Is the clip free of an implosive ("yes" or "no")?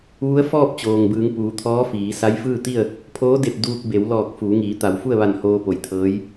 yes